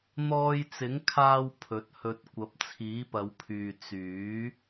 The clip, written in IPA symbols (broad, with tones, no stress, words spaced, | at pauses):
n̪ɔː˧jt͡sɪ˨˥ŋkʰaː˧w pʰɵ˨˥t̚hɵ˧t̚ kʷɐ˨˥p̚t͡sʰiː˨˥pɐ˨˧wpʰyː˨ t͡syː˨˥